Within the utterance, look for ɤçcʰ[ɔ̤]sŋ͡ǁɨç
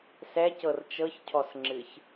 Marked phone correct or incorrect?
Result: incorrect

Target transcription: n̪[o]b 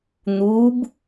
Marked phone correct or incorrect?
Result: incorrect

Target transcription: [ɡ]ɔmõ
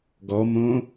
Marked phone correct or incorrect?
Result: correct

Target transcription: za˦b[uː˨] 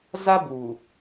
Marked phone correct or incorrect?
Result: correct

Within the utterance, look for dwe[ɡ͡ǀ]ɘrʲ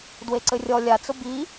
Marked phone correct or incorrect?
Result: incorrect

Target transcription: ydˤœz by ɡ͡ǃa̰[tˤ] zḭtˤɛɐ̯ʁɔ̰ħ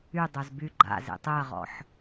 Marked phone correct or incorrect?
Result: incorrect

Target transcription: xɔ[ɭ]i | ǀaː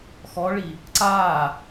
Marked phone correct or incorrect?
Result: correct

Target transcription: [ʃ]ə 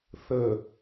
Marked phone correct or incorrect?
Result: incorrect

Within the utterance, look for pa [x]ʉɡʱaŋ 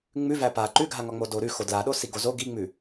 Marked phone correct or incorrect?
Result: incorrect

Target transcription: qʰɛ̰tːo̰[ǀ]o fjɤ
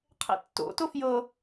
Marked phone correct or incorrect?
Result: incorrect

